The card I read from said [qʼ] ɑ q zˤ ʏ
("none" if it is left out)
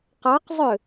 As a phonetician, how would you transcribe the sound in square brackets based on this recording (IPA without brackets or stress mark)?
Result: q